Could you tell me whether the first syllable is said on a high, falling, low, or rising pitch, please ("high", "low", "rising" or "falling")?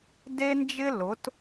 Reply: high